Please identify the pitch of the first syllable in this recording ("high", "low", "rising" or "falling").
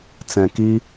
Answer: low